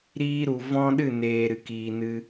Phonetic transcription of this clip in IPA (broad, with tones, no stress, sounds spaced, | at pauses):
ɾ iː˧ ɾ u˨ v ɔ̃˦ ɗ ɨ˦˨ n eː˨ ɾ ɨ˨ k iː˨ n ɨ˧